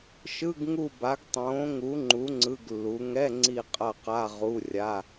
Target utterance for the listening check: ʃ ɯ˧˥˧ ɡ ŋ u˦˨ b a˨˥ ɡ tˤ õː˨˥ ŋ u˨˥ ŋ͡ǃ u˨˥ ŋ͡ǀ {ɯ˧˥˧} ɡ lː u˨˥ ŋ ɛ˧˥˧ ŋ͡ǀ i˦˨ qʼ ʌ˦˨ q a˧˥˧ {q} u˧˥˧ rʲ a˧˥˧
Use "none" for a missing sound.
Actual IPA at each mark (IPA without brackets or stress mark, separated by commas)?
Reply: ɯ˧˥˧, ʁ